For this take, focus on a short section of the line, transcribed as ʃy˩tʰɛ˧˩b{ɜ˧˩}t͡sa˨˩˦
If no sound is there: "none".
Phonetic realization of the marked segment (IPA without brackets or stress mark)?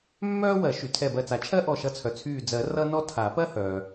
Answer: ɜ˧˩